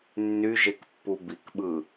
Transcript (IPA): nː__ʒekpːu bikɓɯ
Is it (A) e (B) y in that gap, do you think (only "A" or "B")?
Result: B